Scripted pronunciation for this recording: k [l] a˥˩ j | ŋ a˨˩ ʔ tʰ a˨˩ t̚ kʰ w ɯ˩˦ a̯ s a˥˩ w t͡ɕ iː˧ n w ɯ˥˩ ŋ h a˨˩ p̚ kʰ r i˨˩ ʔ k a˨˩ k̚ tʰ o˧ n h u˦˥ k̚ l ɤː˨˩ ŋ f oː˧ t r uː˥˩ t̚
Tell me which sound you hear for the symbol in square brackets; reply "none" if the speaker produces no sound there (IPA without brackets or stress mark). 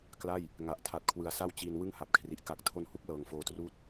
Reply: l